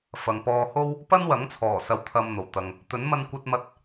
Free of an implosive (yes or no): yes